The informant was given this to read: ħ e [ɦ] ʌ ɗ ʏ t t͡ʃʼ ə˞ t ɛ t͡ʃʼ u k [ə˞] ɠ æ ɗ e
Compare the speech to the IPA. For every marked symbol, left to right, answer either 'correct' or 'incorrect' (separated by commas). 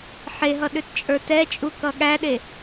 correct, incorrect